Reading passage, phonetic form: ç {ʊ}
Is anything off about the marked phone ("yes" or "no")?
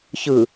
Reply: yes